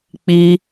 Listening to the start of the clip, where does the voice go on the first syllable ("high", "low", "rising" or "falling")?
high